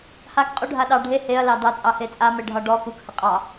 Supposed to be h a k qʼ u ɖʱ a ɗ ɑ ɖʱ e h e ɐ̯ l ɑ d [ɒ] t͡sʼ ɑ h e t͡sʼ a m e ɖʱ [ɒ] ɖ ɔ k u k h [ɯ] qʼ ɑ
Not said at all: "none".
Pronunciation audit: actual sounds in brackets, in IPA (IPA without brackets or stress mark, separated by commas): ɑ, ɒ, ə